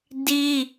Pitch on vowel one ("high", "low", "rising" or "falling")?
high